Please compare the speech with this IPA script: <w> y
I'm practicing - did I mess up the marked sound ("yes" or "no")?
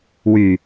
no